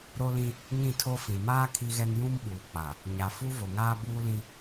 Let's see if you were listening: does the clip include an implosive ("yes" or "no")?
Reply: yes